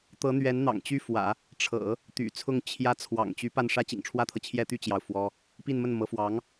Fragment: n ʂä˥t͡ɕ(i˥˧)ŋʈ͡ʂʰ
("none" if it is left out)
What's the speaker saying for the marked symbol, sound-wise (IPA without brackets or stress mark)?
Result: ḭ˨˩